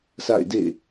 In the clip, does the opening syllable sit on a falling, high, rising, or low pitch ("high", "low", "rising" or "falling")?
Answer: falling